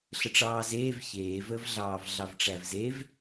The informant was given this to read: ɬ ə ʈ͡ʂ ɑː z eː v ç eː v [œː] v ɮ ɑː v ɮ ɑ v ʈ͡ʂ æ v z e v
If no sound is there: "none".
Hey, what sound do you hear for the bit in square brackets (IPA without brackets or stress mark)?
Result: əː